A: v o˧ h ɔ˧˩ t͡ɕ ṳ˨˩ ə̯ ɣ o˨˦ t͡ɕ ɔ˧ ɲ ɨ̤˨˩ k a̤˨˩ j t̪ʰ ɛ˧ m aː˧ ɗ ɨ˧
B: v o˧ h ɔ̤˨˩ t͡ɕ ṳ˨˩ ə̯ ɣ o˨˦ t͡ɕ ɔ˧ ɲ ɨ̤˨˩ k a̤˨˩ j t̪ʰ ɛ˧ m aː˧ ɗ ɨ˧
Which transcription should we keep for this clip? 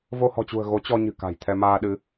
B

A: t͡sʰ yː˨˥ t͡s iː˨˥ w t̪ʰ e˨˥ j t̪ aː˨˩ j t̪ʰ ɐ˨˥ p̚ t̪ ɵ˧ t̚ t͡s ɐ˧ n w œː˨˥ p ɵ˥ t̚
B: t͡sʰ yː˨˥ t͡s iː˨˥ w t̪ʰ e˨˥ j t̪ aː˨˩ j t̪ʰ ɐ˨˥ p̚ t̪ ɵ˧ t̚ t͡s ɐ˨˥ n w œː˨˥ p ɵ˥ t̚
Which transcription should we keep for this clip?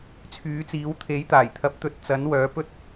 B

